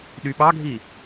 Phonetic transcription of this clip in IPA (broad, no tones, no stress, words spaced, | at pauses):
ɗyɓɑɡʱi